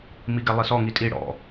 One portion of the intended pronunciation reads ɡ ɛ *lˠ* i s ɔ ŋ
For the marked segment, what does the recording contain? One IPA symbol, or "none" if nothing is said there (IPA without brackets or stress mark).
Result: lˠ